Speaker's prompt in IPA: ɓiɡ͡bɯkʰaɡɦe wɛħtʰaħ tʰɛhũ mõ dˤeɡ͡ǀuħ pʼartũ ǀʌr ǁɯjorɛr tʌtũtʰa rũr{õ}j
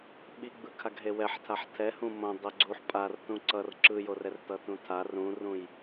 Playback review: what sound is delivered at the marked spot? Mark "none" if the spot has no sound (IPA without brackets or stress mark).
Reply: ũ